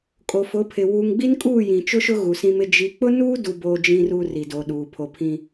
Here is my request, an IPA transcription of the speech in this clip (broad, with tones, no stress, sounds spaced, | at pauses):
kʼ o˨ f ʊ˨˦ pʰ ɪ˨ w uː˨ ŋ ɡ͡b i˦ n kʼ uː˦˨ j ĩ˨ t͡ʃ ʊ˦ ʃ ʊ˦ ɣ u˨ s ĩ˦ m ɪ˦ d͡ʒ i˨ k͡p ʊ˦ n uː˦ d u˦ b oː˦ d͡ʒ ĩ˦ r u˦ r i˨ d o˨ ɗ uː˨ pʰ o˨ pʰ ĩ˦